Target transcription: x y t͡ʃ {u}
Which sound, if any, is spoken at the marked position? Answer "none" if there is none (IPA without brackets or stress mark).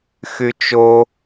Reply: o